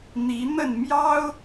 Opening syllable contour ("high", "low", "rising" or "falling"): rising